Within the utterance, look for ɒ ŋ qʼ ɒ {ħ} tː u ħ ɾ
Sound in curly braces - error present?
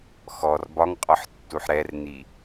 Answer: no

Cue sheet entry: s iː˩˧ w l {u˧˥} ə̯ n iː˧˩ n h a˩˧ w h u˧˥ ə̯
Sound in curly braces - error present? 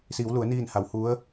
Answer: yes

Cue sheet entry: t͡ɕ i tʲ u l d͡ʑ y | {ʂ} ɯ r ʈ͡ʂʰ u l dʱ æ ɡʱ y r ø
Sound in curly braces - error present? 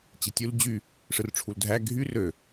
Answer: no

